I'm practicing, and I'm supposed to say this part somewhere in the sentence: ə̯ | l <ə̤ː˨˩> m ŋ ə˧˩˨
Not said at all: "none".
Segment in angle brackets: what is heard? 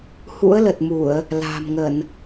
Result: a̤ː˨˩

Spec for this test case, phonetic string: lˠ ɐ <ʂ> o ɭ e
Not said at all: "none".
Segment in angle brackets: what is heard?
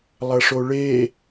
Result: ʂ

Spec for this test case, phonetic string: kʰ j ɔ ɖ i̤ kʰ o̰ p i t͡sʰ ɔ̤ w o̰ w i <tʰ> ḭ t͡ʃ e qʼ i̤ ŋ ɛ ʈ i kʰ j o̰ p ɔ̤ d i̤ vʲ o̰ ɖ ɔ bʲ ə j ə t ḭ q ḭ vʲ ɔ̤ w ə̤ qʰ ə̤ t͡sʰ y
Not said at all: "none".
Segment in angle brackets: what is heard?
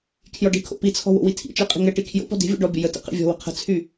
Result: tʰ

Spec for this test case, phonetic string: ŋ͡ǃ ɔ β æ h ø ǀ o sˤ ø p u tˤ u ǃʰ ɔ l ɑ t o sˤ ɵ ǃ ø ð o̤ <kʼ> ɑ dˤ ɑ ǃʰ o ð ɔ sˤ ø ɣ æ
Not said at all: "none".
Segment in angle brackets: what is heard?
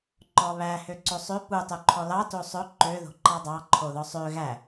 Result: ǃ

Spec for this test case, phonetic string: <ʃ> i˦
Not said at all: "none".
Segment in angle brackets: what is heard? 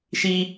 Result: ʃ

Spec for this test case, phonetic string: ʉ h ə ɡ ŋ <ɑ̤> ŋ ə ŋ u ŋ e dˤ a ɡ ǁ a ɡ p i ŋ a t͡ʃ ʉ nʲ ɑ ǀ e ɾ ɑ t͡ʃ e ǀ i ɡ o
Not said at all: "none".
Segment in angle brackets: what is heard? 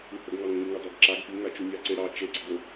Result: ɑ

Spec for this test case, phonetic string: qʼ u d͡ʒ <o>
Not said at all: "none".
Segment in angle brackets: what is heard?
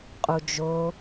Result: o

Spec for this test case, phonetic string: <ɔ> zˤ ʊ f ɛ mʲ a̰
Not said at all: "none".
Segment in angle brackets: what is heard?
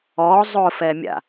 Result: ɔ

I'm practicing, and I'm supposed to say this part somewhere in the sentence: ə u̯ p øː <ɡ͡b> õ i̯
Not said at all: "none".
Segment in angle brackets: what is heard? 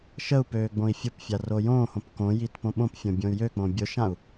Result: ɡ͡b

